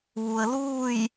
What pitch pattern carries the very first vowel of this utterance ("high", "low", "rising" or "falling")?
low